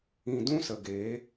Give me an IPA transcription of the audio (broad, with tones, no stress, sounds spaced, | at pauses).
ĩ˨ d ũ˧ s ə˨ ɡ eː˨˦